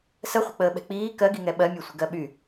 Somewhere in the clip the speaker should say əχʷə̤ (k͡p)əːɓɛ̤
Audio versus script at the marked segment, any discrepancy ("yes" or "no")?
no